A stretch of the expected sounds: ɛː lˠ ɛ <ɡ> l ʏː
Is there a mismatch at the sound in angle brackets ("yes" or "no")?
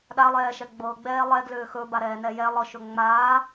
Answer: no